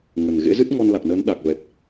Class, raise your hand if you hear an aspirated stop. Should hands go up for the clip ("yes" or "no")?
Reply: no